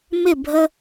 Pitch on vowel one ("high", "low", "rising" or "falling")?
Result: falling